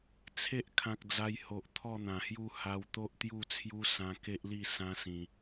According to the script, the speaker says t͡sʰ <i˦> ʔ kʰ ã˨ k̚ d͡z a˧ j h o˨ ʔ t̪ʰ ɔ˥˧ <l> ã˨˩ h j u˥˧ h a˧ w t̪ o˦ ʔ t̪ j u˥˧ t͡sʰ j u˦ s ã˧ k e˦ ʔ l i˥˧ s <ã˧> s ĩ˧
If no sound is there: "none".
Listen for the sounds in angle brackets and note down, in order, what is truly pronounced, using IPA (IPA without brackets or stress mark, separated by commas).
e˦, n̪, ã˦